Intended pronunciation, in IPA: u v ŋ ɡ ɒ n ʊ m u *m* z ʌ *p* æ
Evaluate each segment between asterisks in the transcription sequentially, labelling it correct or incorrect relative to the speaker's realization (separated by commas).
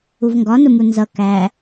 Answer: incorrect, incorrect